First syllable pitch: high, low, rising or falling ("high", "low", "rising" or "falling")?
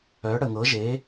rising